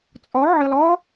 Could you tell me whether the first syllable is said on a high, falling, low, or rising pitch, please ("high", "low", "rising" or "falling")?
rising